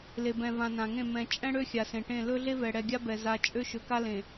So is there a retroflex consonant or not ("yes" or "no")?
yes